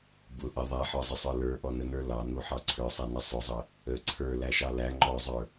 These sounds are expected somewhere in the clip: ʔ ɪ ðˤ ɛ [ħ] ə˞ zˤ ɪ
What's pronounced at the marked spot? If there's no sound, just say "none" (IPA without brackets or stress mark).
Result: ħ